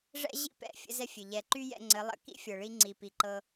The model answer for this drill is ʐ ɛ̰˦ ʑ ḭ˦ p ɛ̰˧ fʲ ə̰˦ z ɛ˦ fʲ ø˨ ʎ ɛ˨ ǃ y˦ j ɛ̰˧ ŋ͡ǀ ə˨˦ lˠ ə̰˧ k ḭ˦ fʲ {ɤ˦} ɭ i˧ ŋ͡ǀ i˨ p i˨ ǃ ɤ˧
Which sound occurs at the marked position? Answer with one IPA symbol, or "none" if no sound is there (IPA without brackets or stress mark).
ɤ˨